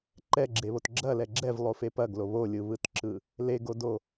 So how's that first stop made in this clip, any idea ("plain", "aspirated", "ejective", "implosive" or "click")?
click